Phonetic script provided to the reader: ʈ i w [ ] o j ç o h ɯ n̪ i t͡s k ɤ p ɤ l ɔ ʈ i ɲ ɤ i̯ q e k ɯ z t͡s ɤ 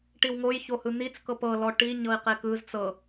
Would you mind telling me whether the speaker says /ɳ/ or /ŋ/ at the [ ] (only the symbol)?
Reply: ŋ